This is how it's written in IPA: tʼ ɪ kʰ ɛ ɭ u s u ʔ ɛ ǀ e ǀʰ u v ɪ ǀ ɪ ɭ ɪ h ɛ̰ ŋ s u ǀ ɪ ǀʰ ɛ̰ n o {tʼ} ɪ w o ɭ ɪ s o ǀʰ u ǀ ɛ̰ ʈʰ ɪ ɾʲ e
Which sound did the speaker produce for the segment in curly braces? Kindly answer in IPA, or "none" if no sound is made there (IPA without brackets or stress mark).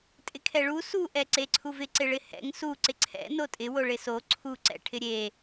tʼ